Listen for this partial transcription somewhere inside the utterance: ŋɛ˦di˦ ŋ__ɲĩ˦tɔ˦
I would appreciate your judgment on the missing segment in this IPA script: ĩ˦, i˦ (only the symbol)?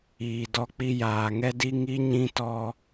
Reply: i˦